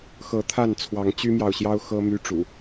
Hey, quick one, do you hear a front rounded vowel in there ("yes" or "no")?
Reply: yes